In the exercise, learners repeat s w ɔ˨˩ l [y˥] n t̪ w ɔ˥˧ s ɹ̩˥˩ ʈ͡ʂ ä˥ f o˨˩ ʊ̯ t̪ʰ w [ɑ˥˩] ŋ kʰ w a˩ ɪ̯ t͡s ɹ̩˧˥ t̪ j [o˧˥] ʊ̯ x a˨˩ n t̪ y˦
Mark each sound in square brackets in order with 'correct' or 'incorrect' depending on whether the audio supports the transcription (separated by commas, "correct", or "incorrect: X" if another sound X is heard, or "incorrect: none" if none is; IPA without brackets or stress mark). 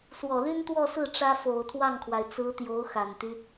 correct, correct, correct